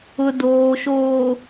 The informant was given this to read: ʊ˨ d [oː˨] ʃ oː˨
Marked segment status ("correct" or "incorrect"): correct